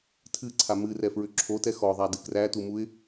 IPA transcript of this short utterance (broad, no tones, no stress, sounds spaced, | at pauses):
tʰ ɨ ǀʰ a m ɨ r ɛ f ɹ ʏ ǁʰ o t ɛ x ɔ ðˤ a d ɨ k r æ t u m u ɪ̯